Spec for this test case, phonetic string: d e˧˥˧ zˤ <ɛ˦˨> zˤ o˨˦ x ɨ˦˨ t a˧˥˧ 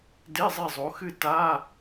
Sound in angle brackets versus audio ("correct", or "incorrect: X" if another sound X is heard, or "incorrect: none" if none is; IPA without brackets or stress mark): incorrect: e˦˨